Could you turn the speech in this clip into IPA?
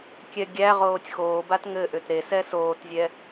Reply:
kʲ ɛ ɡʲ æ ʁ oː tʲ x oː b a t ŋ ɘ ʔ ʏ t ɾ e s ɛ s oː t zʲ ɛ

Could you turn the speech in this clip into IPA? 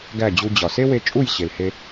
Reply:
ɡ æ˦˨ d͡ʑ u˧ d͡ʑ ɒ˨ s e˦ w e˧ t͡ʃʼ u˦˨ j ɕ e˨ l h e˧

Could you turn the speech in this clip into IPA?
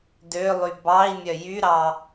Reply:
d ø lˠ y b ɑ i̯ mʲ œ j y ɾ ɑ

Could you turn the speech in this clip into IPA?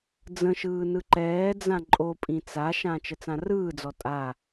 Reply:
d͡z ə̃ ʃ ɯː n ɯ ǃ ɛː d͡z ã ǃʼ o pʼ ĩ t͡s a ʃ ã t͡ʃ ə t͡s ã r ɯː d͡z ɔ tʼ a

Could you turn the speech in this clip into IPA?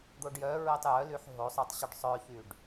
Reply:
d̪ o ɖ j œ ɹ e tˤ j œ l y ħ ɦ o sˤ œ tˤ ɕ y ɖ sˤ œ ç y ɖ

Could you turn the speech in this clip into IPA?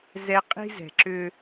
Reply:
z ɛ˦ qʼ i̤˦ z ɛ̤˨ ǁ ʏ˦

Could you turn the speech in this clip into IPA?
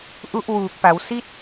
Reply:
ʔ u˦˥ ʔ w uː˨˩ k̚ p a˩˦ w s i˥˩ t̚

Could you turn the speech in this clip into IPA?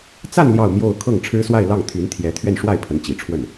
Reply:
t͡s a˥˧ n l j ɑ˥˧ ʊ̯ m j o˥˧ ʊ̯ kʰ ɤ˥˩ ŋ ʈ͡ʂʰ ɻ̩˥ s w a˥˧ ɪ̯ l ɑ˥˩ ŋ t̪ʰ y˧˥ n t̪ʰ j ɛ˧˥ t̪ʰ ɥ ɛ˥˧ n ʂ w a˥˩ ɪ̯ pʰ ə˧˥ n t͡ɕ i˨˩ ʈ͡ʂʰ w ə˥˩ n

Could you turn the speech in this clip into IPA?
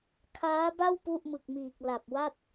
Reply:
kʰ aː˦˥ b a˥˩ w p u˥˩ ʔ m ɯ˨˩ k̚ m iː˨˩ k̚ l a˨˩ p̚ w a˥˩ t̚

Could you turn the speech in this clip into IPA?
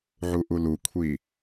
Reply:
ʕ u ʔ u l u kʷʰ i

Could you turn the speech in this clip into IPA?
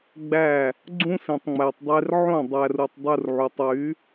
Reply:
ɡ͡b æ˦˨ | ɡ͡ǀ ũ˦ s ĩ˨ tˤ ŋ͡m æ˨ tˤ dˤ e˧ r ʕ õ˦˨ dˤ æ˨ r u˨ tˤ dˤ u˧ r ʕ u˨ tˤ w y˨˦

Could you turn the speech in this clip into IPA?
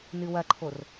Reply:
n ɨ w ɐ ǃʰ o r

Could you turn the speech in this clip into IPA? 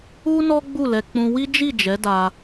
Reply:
u˦ n ɔ˦ ɡ͡b u˦˨ l ɛ˧ k͡p ũ˧ w i˦ d͡ʒ i˦˨ d͡ʒ ɛ˨˦ d a˧

